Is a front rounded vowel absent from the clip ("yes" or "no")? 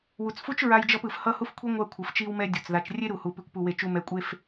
yes